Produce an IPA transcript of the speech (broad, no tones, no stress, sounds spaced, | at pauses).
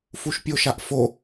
f u ʃ pʲ o ʃ a ʔ f o